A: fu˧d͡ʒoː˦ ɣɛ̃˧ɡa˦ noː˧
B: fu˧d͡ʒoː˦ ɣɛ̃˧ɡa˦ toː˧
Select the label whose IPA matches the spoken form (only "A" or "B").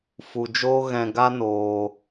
A